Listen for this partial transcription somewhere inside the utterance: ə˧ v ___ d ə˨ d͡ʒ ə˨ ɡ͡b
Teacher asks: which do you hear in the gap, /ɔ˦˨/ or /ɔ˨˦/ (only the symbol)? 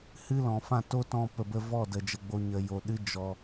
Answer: ɔ˦˨